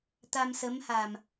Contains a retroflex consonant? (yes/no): no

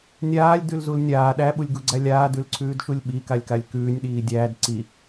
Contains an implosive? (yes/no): yes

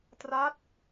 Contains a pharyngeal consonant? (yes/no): no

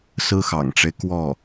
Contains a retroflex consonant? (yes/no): yes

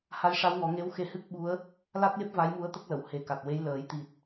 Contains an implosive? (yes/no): yes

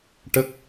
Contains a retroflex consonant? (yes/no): yes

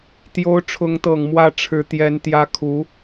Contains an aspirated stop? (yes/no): yes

